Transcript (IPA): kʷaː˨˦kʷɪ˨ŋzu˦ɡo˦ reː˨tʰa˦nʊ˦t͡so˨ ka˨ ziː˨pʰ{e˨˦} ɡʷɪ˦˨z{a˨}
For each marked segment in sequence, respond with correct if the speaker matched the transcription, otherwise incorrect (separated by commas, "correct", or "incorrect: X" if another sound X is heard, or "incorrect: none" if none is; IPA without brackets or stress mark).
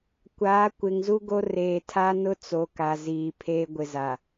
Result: incorrect: e˦, correct